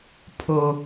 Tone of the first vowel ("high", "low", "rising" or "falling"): low